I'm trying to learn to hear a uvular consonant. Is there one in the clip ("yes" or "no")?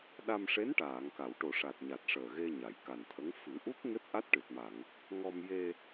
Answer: no